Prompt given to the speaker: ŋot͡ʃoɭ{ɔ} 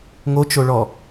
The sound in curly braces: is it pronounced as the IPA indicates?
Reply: yes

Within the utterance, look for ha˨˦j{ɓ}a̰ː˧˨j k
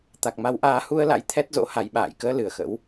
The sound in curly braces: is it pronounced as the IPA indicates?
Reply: yes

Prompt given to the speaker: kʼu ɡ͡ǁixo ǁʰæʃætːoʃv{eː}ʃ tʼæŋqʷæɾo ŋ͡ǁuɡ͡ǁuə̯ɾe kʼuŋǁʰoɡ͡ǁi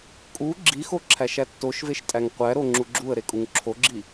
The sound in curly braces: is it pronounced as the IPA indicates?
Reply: no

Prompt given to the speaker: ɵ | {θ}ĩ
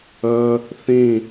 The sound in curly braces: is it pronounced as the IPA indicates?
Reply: yes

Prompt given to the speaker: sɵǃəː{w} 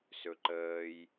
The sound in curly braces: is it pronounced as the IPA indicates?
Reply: no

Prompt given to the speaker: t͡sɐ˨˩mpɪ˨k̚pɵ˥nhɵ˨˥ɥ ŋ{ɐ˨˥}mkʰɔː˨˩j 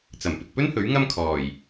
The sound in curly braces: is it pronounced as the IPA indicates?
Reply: no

